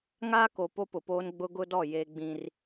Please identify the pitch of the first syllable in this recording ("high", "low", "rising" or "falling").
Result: high